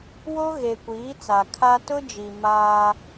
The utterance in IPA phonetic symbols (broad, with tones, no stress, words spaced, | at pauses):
wo˦ ɣe˨kʷiː˨˦ t͡sa˨ kʰa˦ tʊ˦d͡ʒi˨ maː˦